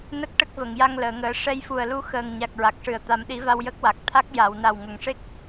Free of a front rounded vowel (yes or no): yes